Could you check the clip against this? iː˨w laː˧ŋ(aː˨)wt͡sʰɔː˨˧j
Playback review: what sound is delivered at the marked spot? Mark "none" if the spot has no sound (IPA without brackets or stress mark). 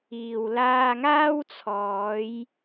aː˥